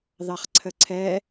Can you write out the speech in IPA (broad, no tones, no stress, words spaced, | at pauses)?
ðɑχǀʰəǀʰɛ